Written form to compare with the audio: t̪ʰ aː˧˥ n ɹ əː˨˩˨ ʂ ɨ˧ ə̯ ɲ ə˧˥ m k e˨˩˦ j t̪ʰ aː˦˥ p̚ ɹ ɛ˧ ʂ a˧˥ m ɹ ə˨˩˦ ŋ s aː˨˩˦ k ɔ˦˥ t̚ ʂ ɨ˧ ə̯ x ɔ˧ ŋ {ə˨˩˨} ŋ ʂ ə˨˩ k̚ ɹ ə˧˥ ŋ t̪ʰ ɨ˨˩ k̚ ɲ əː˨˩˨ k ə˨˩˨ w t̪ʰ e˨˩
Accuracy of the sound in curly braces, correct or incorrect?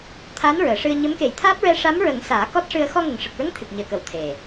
incorrect